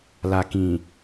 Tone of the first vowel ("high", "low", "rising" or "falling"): low